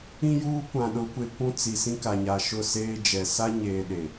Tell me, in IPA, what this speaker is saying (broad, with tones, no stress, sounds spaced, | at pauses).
ĩ˦ j uː˦ kʷ ã˨ ɗ ʊ˨˦ kʷ e˨ kʷ ũ˦ t͡s i˨ s ĩ˦ k a˨ ɲ a˨ ʃ ʊ˦˨ s eː˦ d͡ʒ ɛ˨ s a˦ ɲ eː˨ ɗ e˨